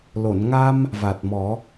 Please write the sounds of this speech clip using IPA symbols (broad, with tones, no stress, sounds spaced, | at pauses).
l o˨˩˨ n ŋ a˧ m | v a˨˩ t̚ m ɔ˨˩˦